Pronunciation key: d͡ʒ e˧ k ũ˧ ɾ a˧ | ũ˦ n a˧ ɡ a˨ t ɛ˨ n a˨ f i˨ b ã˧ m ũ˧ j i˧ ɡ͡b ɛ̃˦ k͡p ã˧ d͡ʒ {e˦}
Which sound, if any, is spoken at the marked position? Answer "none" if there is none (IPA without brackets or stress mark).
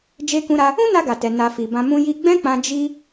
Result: i˦